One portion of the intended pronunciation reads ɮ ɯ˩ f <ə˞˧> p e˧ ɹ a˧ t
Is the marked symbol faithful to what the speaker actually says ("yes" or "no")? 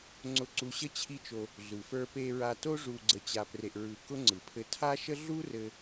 yes